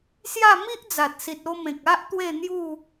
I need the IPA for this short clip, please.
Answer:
sja˥˧ mi˦ʔd͡za˨t̚si˨t̚ o˧mẽ˨k̚ a˦ʔ t̪we˥˧n̪ju˥˧

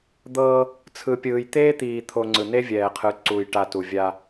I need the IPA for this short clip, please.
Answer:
d̪ɤː˦ | t͡sʰɯ˨pʲɯː˨j t̪eː˦t̪iː˨t̪ʰo˨ ŋ͡ǀɯ˨ne˦vʲɛː˨qʰɯ˨˦ ǀu˨j ʈa˨ tu˨vʲa˦

